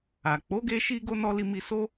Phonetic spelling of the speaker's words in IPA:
a˨ k͡p o˨˦ ɡ e˧ ʃ i˧ ɡ o˦ n ɔ˧ l i˧ m i˧ s o˦

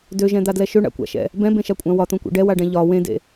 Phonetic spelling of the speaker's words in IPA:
d ø ʒ ɛ̃ d̪ a d l ɛ ʃ ø ɳ a̰ kʷ a̰ ʃ ɛ̰ | b ɛ̃ b ẽ ʃ a kʷʼ ã w ɒ t̪ õ kʷ ḛ ɖ ɛ w a ɖ ɛ̃ ʎ ɒ w ẽ d ḛ

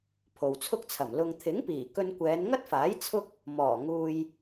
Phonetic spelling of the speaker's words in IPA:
pʰ o˨ w t͡sʰ ʊ˥ k̚ t͡sʰ ɐ˨˩ m l ʊ˨ ŋ t̪ʰ ɪ˨˥ ŋ p iː˨˩ k ɵ˧ n kʷ ɛː˨˧ n ŋ ɐ˥ t̚ f aː˨˥ j t͡sʰ ʊ˥ k̚ | m ɔː˨˩ ŋ uː˧ j

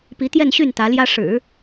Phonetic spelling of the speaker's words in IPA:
p i˧˥ t̪ j ɛ˥˧ n ɕ y˥˩ n t̪ ä˧˥ l j ä˥ ʂ ɻ̩˨˩˦

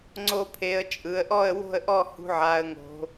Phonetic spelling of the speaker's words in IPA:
ŋ͡ǀ o˧ pʰ e˩˧ ə̯ t͡ʃʼ ɯ˩˧ ə̯ ʔ ɔ˥˨ ə̯ w o̤˥˨ ə̯ ʔ ɔ˥˨ h ṳ˧ ʕ a˩˧ ə̯ ŋ o̤˩˧

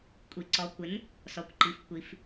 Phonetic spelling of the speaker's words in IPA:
kʷʼ i˩ ǀ ɔ˩˧ kʷ ɪ˩˥ n | s ɔ˩˥ kʷ ǃ i˩˥ f kʷ i˩˧ f

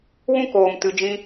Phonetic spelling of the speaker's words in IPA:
w ũ˦ k oː˨ m t ɨ˨ d͡ʒ ĩ˧

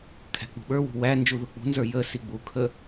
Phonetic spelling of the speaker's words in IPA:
kʰ æ̤ k͡p ṳ ɓ ə˞ w ṳ w æ n d͡ʒ u ð ʊ k͡p ṳ n z ə˞ j ə s i ɡ͡b u kʰ ə

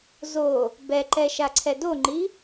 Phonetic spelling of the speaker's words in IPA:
z o | b ɛ ǃ ɛ ʃ a ǀʰ ɛ d o ŋ͡ǃ i

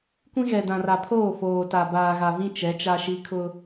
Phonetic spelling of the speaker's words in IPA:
kʷ ĩ˦ ɣ ɛ˨ d ã˨ r a˨ pʰ oː˦˨ f oː˨ t a˨ b aː˨ ɣ a˨ v ĩ˦ t͡ʃ ɛ˨˦ t͡ʃ a˦ ʃ i˦ kʰ ʊ˦

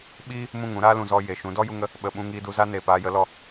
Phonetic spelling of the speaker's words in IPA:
ɓ iː˦ | m ũ˦˨ ŋ ũ˦ ɾ aː˦ l ũ˨ z ɔ˧ j e˨ ʃ ũ˨˦ d ɔ˦ j u˧ ŋ ə˧ | ɓ ə˨ ɓ ũ˧ ŋ iː˧ d u˧ z a˦ n eː˨ p aː˧ j ə˨˦ l ɔ˧

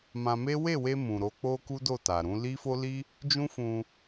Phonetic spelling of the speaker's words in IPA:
m ã˧ m e˦ w e˦˨ w e˧ m ũ˨ ɾ o˨˦ k͡p o˦ k u˦ d o˦˨ t a˨ ɾ ũ˨˦ l i˦ f o˦ l i˦ | d͡ʒ ũ˦ f ũ˧

